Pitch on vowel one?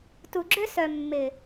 low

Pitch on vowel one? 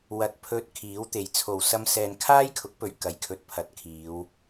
low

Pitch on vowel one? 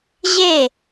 falling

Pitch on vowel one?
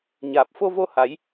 low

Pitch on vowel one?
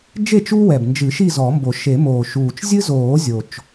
falling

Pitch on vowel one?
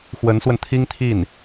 rising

